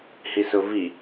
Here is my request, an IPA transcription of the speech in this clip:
hisʊvi

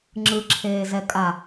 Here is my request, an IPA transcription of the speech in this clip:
ŋ͡ǁɯǁʰeːzɛ kʼa

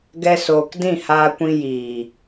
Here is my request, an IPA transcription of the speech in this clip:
ɡɛ˧soː˨k dĩ˦˨haː˧kʷĩ˧ jiː˨

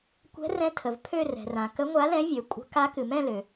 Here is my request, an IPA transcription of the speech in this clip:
kʷɛ̤˨˦rɛ̃˨˦ tʰə˩v pʰø˦˨rɛ̤˩rã˩ kə˨˦ŋʷa˨˦lɛ̃˨˦vʲø˩ kʷʼə̤˨˦ ka˨˦kɨ˩mɛ̃˦˨lø˩

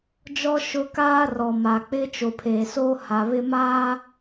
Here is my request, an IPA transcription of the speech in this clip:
d͡ʒɔ˦ ʃʊ˦ kaː˦ rɔ˨ma˨k͡pɪ˦ t͡ʃo˨pʰeː˨soː˦ ha˨βɪ˦maː˦

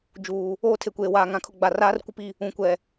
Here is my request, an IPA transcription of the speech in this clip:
d͡ʒuː˨ | oː˦tʰe˨kʷeː˨waː˨ ŋã˨kʰʊ˨ ɡ͡ba˨raː˦rkʷɪ˦pi˦˨ | ũ˨kʷɛ˨

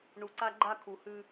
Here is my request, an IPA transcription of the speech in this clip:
ɳu˨ǀa˦ɡ͡ǃa˦ kʰu˨hʉ˦

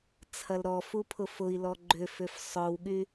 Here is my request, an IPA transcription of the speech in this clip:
t͡sʰɐlɾɔfu pʰʊfʊi̯lɔ ɡ͡ǃʏfʏf sˤœwɠy

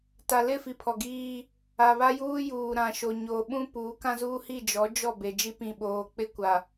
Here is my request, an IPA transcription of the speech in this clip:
ta˨lɪ˦˨fi˨ pʰɔ˨ɡiː˦ | a˨ βa˦juː˦juː˨ ɾã˨ʃo˨ ɲoː˨ɓũ˦ puː˨˦kã˦zuː˦hi˦˨ d͡ʒɔ˨˦d͡ʒɔ˦˨be˨ d͡ʒi˦pĩ˨ɓoː˨k͡pɪ˦ kʷa˨

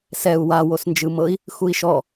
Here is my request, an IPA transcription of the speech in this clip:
sɛu̯ wa wosnd͡ʒɯmɤi̯ | xui̯ʃɔ

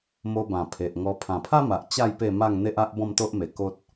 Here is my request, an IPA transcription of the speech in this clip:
mo˧bã˨˩ pʰe˨ʔŋɔ˧ pʰã˨˩pʰa˦ma˨ʔ t͡ɕa˥˧j pe˥˧ma˥˧ŋ n̪e˦ʔa˦ʔ bɔ̃˥˧mt̪o˦ʔme˨˩ ko˦t̚

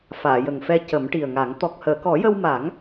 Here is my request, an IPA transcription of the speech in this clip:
faː˨˩˨jə˨˩ŋfɛ˧ cə˨˩˦mʈi˨˩ə̯ŋa˨˩˦ŋ t̪ɔ˨˩k̚həː˨˩˨ kɔ˨˩˦jə˧wma˨˩˦ŋ

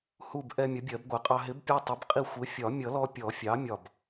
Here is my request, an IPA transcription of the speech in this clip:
hu˧˩b ʔɛ˧ mʲʌ˩˥bʲɜ˨˩˦bɡʷæ˩˥qʼɑ˧ ɦɪ˩˥bpʲɛ˧ tˤə˩˥bqʼi˧˩ xʷɪ˩˥ fʲɒ˨˩˦mʲʌ˨˩˦lɔ˧ pʲɔ˨˩˦fʲɑ˩˥ mʲɒ˧˩b

